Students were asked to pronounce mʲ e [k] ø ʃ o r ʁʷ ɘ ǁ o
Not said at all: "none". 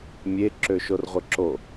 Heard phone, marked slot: ǁ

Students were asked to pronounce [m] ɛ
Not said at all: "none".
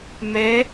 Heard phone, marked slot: m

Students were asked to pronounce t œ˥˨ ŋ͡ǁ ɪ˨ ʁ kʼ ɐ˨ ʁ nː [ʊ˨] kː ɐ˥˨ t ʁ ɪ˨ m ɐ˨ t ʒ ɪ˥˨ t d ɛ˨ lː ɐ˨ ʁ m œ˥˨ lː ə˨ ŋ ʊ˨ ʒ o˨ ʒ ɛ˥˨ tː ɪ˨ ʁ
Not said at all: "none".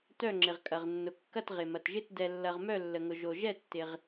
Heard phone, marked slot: ʊ˨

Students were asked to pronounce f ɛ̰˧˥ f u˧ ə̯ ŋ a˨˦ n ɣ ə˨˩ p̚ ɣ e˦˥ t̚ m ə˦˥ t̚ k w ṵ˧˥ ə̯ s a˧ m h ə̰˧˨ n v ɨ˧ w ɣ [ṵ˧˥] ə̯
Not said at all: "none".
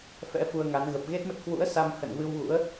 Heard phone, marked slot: ṵ˧˥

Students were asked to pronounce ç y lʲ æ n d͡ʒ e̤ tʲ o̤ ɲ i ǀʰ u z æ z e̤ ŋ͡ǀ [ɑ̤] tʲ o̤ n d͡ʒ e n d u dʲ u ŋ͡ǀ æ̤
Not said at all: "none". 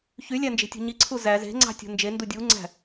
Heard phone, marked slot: ɑ̤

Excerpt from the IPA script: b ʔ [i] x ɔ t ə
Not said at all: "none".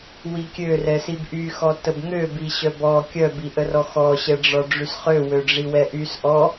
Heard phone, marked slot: y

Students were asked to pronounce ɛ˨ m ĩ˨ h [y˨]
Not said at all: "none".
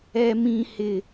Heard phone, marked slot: ɪ˨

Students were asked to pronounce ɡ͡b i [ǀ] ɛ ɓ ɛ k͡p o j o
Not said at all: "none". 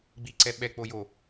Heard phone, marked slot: ǀ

